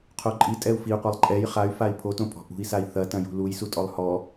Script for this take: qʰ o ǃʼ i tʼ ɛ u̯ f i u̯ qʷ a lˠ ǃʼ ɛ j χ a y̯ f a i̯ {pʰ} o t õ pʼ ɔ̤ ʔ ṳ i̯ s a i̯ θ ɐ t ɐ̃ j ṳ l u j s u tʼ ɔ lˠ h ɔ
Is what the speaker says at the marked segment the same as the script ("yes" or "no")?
yes